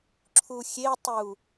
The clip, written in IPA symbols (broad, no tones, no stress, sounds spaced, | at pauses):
ǁʰ u xʲ e tˤ u